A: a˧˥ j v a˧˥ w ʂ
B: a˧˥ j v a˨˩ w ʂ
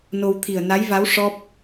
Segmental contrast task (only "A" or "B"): A